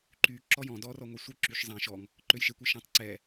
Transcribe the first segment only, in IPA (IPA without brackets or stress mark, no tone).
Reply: ǃ